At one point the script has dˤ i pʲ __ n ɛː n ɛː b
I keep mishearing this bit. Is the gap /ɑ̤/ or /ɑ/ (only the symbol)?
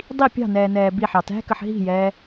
ɑ̤